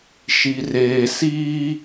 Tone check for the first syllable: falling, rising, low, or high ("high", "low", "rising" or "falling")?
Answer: low